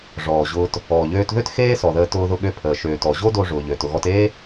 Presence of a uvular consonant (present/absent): absent